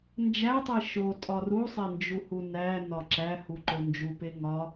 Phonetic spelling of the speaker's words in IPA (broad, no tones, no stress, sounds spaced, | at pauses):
n d͡ʒ æ tˤ i ʃ o tʼ ɒ r u sˤ e n d͡ʒ u h u n æ n ɒ ǁ æ h u ǃ o n d͡ʒ u p e ŋ ɒ